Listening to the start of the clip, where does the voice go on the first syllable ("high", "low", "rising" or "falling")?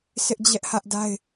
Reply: high